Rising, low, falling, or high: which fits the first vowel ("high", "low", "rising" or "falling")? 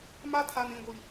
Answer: high